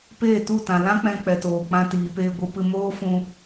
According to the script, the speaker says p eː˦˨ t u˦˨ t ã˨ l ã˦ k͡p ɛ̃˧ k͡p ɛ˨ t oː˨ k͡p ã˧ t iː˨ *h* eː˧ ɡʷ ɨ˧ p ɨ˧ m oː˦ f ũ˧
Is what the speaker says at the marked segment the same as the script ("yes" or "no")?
no